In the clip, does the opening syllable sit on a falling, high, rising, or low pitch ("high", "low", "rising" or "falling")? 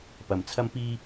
low